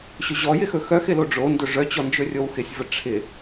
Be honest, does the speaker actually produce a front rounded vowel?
yes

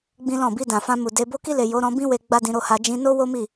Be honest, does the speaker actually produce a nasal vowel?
yes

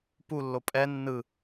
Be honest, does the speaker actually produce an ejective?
yes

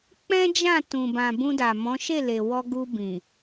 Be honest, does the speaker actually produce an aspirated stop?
no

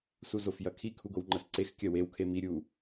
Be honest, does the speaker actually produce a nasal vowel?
no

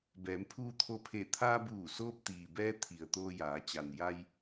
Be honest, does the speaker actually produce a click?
no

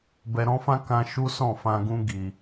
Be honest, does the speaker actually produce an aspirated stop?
no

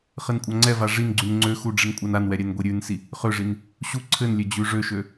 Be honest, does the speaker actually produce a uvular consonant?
yes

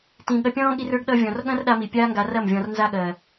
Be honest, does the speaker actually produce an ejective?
no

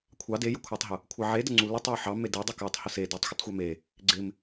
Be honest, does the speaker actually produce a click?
yes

